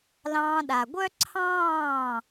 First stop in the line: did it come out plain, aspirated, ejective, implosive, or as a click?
implosive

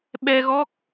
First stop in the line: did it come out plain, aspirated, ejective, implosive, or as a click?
implosive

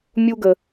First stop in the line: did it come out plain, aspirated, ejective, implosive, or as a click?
plain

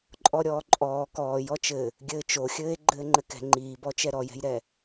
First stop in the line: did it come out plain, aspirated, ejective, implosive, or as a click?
click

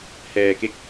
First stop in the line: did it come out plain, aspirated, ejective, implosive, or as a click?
plain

